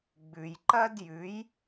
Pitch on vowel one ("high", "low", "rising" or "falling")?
low